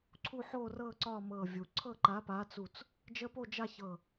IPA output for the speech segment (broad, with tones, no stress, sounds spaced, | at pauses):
ǀʰ u˥˧ ħ o˥˧ r ɤ˥˧ ǀ ɒ˥˧ m ɤ˧˩ vʲ u˩ ǀʰ ɤ˥˧ ǃ a˨˥ p a˨˥ t͡s u˧˩ t͡s | d͡ʒ ə˦˥ p o˥˧ d͡ʒ a˥˧ ç ɤ˧˩